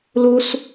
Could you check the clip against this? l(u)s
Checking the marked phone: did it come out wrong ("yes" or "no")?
no